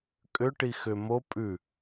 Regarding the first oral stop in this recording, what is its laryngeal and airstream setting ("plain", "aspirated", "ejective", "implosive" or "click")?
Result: ejective